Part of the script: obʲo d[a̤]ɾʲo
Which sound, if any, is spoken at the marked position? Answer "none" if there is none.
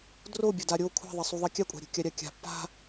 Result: a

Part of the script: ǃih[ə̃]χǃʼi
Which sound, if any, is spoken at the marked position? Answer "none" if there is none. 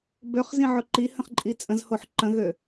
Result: ə̃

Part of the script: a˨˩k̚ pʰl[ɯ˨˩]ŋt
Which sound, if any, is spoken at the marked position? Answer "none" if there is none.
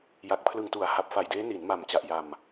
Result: ɯ˨˩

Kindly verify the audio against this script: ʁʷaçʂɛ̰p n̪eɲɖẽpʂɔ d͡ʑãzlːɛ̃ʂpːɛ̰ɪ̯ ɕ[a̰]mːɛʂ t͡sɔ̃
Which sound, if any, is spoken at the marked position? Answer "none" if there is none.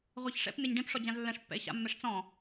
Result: a̰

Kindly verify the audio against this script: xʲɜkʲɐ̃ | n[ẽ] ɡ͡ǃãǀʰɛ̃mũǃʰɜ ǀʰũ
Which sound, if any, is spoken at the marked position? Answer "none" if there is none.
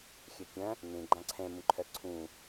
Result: ẽ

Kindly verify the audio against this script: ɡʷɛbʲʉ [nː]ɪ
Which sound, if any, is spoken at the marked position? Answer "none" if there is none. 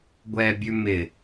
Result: m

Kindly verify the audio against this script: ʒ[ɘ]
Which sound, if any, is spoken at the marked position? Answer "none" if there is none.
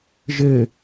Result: ɘ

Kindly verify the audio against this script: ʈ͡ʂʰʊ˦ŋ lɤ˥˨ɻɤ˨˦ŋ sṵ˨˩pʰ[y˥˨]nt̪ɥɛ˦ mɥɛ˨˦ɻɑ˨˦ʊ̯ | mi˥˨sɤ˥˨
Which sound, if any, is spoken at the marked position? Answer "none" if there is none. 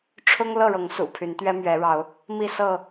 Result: y˨˦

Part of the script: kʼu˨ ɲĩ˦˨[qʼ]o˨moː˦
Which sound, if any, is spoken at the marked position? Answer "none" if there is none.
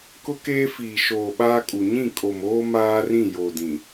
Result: kʼ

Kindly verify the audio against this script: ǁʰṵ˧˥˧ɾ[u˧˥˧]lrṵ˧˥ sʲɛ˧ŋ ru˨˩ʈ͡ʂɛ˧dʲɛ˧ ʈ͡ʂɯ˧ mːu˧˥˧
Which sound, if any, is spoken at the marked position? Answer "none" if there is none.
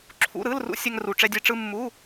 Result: ɯ˧˥˧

